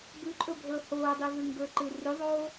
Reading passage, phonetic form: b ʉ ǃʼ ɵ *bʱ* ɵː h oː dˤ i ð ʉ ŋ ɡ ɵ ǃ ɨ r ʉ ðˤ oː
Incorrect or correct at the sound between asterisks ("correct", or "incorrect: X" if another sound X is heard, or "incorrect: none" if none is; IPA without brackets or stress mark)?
correct